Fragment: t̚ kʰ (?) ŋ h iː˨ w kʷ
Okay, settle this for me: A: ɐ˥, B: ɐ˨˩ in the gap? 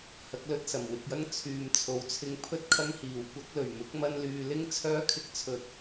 A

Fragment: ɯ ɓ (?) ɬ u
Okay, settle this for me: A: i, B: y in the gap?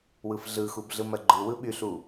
B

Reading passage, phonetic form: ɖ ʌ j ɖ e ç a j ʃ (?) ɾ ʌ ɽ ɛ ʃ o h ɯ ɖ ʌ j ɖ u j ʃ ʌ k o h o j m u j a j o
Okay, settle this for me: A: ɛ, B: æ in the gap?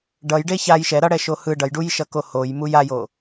A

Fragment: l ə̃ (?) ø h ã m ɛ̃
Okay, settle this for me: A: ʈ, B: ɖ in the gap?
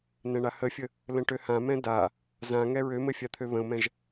A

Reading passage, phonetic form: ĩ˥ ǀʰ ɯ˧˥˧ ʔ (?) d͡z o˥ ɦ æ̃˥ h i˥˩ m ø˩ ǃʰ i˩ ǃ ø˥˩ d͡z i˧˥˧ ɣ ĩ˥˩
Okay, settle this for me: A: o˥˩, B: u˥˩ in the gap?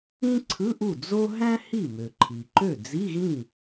B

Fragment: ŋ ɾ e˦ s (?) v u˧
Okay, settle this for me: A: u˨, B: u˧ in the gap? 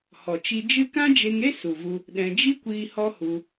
A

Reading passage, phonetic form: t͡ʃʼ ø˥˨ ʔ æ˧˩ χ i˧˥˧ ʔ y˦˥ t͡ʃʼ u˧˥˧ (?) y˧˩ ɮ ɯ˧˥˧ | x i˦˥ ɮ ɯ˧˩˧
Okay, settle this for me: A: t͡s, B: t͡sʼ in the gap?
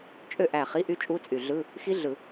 B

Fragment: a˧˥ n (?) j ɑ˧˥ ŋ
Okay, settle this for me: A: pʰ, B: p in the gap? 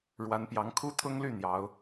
B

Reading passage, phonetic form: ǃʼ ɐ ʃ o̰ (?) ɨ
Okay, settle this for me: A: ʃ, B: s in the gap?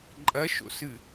B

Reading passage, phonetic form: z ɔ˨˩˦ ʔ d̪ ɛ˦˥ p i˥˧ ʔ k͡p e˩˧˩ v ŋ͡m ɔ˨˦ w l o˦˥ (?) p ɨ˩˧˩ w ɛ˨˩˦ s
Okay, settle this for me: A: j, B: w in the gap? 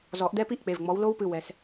B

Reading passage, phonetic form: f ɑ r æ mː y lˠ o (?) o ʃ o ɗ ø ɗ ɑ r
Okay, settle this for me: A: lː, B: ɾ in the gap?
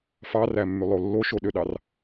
A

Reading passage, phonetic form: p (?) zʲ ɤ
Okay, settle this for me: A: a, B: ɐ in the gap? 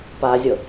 A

